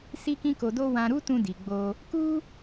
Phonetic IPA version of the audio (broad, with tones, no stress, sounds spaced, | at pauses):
s i˦ k ĩ˦ k o˧ d o˦ w ã˧ ɾ u˦ t ũ˧ d i˨ ɡ͡b o˧ | k u˦